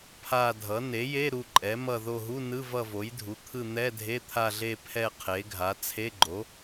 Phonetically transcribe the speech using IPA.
pʰa˦˨dʱʌ˩˥ ne˩˥je˧˥˧ ɾu˦˨ǃʼɛ˩˥mʌ˦˨ ðo˦˨ɦu˧˥˧nɯ˧˥˧ vʌ˦˨vo˩˥jdʱu˩˥t̪ʰɯ˦˨ n̪ɛ˧˥˧dʱe˧˥˧t̪ʰa˦˨ɮe˦˨ pʰɛ˦˨ qʰe˩˥ɡʱa˩˥ t͡sʰe˧˥˧ɡ͡ǃo˩˥

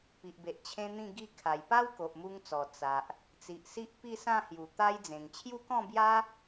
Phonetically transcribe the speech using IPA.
pi˨ʔbe˨ʔ t͡ɕʰẽ˦ n̪ĩ˥˧ ɡi˧kʰa˨˩jpa˦w ko˨ʔmu˧ŋt͡sɔ˨˩ t͡sa˨ʔ | t͡si˨ʔsi˦ʔpi˥˧ sã˥˧hju˨˩t̪a˦jd͡zẽ˨˩ŋ t͡ɕʰju˦kɔ̃˥˧bja˦

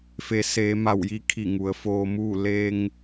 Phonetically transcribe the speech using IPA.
fe˩˧seː˩˧ma˧˩wji˧˥ kʰi˧˩ŋu˩ə̯foː˧muː˥˨ le˧ŋ

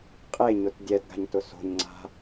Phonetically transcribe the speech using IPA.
qʼeɲʊt dʲɛdɡa̤ɲtʊ so̤ɲŋ͡ǀa̤

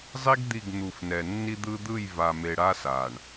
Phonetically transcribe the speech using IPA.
zˤi˦ɡ d̪i˦˨ɡn̪u˨fnɛ˨ nːi˦d̪ɯ˦ d̪ɯ˦˨jva˨me˨ɽa˦ sa˨ɳ

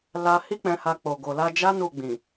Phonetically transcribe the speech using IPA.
la˧ hi˦k͡pɛ̃˧ha˧k͡po˨ ɡo˨la˧d͡ʒa˦ nu˦˨ɡ͡bĩ˨

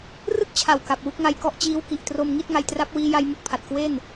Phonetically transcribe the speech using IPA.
rɯ˥˩k̚t͡ɕʰa˨˩w ka˨˩p̚wu˦˥k̚ŋa˧jkɔ˥˩ʔ t͡ɕiː˦˥wki˨˩ʔ tro˧mŋi˥˩t̚ ŋa˧jtra˦˥p̚wiː˦˥ ja˦˥jmu˦˥k̚pʰa˨˩t̚ kwe˥˩n

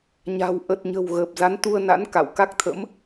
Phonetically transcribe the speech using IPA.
ɲa̤˨˩w ʔə˨˩t̚ɲə̤˨˩w ɣəː˨˩p̚za˨˦nt̪u˧ə̯na̰˧˥n ka̰˧˨wka˦˥k̚t̪ʰə̰˧˥m

